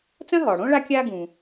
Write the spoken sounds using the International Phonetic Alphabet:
t͡s ɐ̃˥ ɦ ɔ˩ ɽ õ˥ ɭ a˦ kʲ a˥ ɡ ũ˩

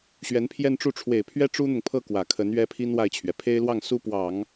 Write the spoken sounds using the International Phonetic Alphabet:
ɕ ɥ ɛ˧˥ n pʰ j ɛ˥˧ n ʈ͡ʂ u˥˩ ʈ͡ʂʰ w e˨˩ ɪ̯ pʰ ɥ ɛ˥ ʈ͡ʂ u˥ n̪ ʊ˨ ŋ pʰ ɤ˥˩ k w ä˨˩ kʰ ə˧˥ n ɥ ɛ˥ pʰ i˥ n w a˥˩ ɪ̯ t͡ɕʰ ɥ ɛ˩ pʰ e˥ ɪ̯ l w ɑ˥˩ ŋ s u˥ p w ɑ˨˩˦ ŋ

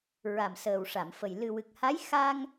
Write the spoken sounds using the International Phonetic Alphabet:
ɹ a˨˩ m s əː˨˩ w ʂ a˨˩˨ m f ə˨˩ j l ɨ˨˩ w ɨ˨˩ k̚ h a˧˥ j x a˧ ŋ

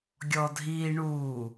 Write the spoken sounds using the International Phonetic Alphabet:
ɡʲ ɔ dʱ iː ɳ uː

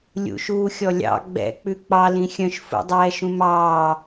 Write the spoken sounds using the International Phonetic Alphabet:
lʲ ṵ ʃ uː xʲ ɔ lʲ ɑ̰ ɡ͡b ɛ̰ k͡p ʉ k͡p ɑ l ĩ xʲ œ̃ ʃ f ṵ dˤ ɛː ʃ ũ m ɑː

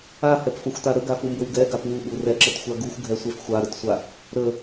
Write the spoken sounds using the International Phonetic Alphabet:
a h ɛ p f ʊ xʷ t a ɾ ə ɡ a f u m b ə w ɡ ɛ ɡ a p w u ɓ u r ɛ ǁ ə t xʷ a ɡ u xʷ ɡʱ ɛ sʷ ɛ f xʷ a ɾ ʊ t sʷ a | ɾ ə

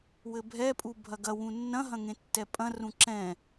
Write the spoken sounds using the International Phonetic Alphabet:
w ɘ bʱ ɛ pʼ u bʱ ɐ ɡ ɐ w ũ nː ɐ̃ ɦ ɐ̃ ŋ ẽ tː ɛ pʼ ɐ̃ r ũ ǁ ɛ̃

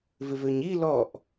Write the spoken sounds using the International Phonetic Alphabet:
v ɪ v ø ɲ i l ɔ ʔ

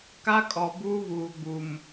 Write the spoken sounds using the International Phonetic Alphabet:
k a˦ kʼ ɔ˨ b uː˦ β uː˨ ɡ͡b u˨ m

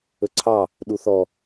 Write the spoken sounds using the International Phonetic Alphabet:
ɵ ǀʰ ɑ | ɗ u θ ɔ

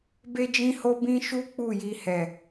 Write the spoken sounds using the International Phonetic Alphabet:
b e˦ d͡ʒ ĩ˦ h o˦ b ĩ˦ ʃ u˦ k͡p u˦˨ j i˧ h ɛ˨

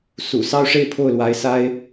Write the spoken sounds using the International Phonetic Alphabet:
s ṵ˨˩ s ɑ˥˧ ʊ̯ ʂ e˥˧ ɪ̯ pʰ o˥˩ ʊ̯ l w a˧˥ ɪ̯ s a˥ ɪ̯

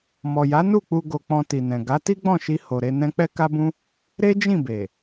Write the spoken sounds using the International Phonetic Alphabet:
m ɔ˨ j a˨˦ n u˦˨ k͡p u˧ ɡ o˧ k͡p ɔ̃˧ t i˨ n ɛ̃˨ ɡ a˨˦ t i˦ ɡ͡b ɔ̃˦˨ ʃ i˧ h o˨ ɾ e˧ n ɛ̃˧ k͡p ɛ˦ k a˦ b ũ˦ | ɾ e˦ d͡ʒ ĩ˦˨ b e˨

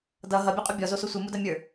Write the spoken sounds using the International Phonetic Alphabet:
d ʌ ɦ ʌ bʲ ɛ qʼ u bʲ ɔ z o s o sʷ ɨ m u d ɐ mʲ ə˞

